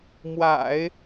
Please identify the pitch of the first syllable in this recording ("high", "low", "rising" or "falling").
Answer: low